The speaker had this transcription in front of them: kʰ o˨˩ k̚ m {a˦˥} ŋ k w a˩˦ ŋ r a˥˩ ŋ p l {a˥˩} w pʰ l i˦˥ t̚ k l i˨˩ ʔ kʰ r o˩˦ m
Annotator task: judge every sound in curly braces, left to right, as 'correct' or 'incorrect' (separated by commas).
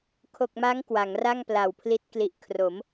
correct, incorrect